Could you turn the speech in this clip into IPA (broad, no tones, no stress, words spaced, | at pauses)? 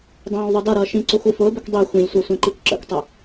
dˤæ̃ːwðˤʌdʌɾʌː ʃĩǀʊ xʷifʊːbʊkʷ dˤi xʷĩlʲsʷʌ sʷɛ̃ǃikʷǁə̰kʷtˤɪ